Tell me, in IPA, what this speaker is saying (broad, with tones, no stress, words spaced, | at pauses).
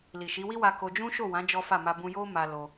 li˨ʃi˨˦wi˦wa˧ ko˧ d͡ʒũ˦ʃo˦˨wã˨˦ d͡ʒɔ˦fa˦˨ ma˧bũ˧jo˦ ma˧lo˧